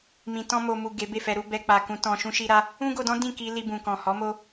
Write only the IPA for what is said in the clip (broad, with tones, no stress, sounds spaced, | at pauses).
m ĩ˨ t ɔ̃˧ m o˨ m u˨ ɡ e˨˦ b e˦˨ f ɛ˧ ɾ u˦ b ɛ˧ k͡p a˨ k ũ˨˦ t ɔ̃˧ ʃ ũ˦ ʃ i˦ ɾ a˦ | ũ˦ ɡ o˧ d ɔ̃˦ d ĩ˦˨ k i˧ l i˧ b ũ˨ k ɔ̃˨ h ɔ˨˦ m o˦